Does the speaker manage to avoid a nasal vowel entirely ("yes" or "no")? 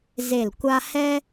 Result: yes